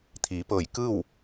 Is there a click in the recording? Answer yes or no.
no